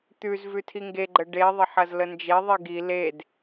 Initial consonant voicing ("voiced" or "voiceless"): voiceless